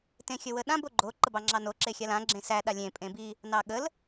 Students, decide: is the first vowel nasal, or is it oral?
nasal